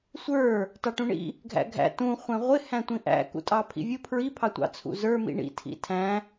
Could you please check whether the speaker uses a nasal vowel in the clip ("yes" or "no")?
yes